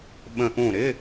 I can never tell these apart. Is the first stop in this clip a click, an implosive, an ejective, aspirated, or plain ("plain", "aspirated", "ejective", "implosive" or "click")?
implosive